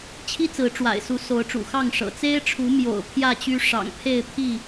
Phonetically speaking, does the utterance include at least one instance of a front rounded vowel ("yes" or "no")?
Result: yes